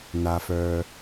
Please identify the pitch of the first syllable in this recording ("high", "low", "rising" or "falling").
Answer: low